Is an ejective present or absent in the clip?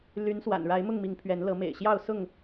absent